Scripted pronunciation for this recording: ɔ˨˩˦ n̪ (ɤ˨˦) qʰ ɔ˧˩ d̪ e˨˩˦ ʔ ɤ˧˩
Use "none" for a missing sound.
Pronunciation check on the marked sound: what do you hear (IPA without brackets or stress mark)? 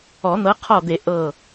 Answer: ɤ˨˦